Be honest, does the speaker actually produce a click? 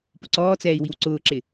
yes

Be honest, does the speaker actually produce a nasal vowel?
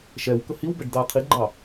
no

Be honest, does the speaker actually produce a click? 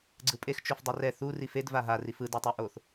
yes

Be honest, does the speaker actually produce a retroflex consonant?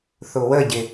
no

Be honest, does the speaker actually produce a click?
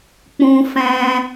no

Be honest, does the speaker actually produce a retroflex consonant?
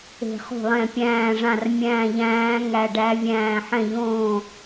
yes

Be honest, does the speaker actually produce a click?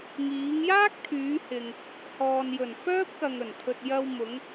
no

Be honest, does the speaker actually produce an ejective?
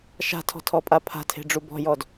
yes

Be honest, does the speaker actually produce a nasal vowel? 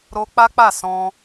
yes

